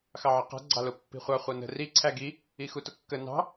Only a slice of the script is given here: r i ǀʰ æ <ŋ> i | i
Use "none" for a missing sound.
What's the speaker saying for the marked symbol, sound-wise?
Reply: ɡ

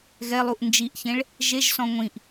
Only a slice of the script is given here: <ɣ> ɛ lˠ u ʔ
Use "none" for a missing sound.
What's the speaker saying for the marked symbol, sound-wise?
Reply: ɣ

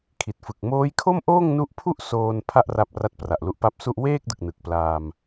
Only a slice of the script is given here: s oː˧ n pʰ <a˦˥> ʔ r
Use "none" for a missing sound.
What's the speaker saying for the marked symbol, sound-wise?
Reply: a˥˩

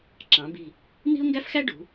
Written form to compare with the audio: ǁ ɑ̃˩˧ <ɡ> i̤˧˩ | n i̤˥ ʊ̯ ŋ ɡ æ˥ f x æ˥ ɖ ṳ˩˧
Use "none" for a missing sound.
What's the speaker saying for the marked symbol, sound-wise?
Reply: b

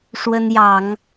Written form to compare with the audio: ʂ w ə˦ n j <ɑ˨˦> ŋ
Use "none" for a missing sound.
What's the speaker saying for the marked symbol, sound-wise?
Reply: ɑ˨˦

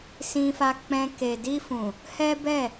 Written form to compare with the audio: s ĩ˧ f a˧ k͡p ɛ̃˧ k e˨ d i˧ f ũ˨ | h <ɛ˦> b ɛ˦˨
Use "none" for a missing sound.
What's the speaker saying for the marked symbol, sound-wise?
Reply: ɛ˦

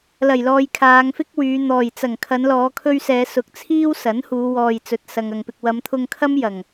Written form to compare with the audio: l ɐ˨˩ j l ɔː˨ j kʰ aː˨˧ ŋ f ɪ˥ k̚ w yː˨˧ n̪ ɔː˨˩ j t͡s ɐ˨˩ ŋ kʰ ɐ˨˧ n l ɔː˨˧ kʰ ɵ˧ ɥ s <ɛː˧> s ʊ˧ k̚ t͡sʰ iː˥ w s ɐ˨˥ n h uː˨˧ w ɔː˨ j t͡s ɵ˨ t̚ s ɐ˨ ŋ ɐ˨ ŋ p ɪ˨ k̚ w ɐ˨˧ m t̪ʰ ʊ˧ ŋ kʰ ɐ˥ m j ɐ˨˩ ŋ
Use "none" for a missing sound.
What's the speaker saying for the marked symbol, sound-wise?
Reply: ɛː˨˧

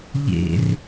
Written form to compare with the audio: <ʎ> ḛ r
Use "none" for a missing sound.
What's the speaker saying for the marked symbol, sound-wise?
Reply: ʎ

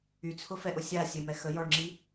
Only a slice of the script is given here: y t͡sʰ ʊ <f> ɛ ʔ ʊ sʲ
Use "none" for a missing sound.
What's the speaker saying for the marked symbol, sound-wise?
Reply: f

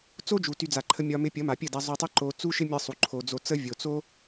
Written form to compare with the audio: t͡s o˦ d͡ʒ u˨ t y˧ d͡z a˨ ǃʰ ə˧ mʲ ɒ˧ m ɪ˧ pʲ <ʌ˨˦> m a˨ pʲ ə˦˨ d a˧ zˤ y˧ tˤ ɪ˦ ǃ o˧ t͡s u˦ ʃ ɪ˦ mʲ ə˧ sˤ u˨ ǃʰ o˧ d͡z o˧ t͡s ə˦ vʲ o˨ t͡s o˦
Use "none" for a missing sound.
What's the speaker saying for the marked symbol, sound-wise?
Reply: ʌ˨˦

